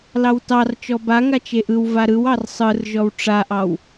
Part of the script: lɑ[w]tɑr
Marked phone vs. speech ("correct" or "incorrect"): correct